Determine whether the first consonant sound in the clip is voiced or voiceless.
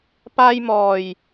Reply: voiceless